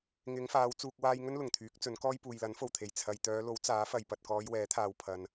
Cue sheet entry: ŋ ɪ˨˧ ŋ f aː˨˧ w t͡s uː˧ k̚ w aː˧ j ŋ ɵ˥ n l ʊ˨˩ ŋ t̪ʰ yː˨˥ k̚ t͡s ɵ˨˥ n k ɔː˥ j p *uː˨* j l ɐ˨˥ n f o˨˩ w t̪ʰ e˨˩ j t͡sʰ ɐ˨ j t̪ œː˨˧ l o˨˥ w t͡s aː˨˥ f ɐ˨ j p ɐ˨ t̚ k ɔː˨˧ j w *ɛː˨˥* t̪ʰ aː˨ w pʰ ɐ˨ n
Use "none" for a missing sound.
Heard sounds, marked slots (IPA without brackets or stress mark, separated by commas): uː˨, ɛː˨˥